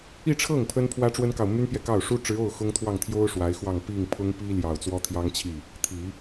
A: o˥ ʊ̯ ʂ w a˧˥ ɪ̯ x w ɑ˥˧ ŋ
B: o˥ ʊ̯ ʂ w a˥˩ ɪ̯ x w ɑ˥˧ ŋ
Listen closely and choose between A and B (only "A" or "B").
A